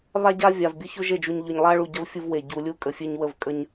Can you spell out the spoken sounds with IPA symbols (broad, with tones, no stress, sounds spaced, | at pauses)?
β a˦ ɟ a˦ vʲ a˨ v bʲ ə˦ ç ɵ˦ ʒ e˦˨ d͡ʒ u˨ ɲ ʎ ɵ˨ ɲ lˠ a˦ ɭ u˨ ɟ ɐ˦ v fʲ u˦ v w e˨ ɟ u˨ lʲ u˦˨ kʼ ə˨ fʲ e˦ ɲ w ə˦˨ v kʼ ə˦ ɲ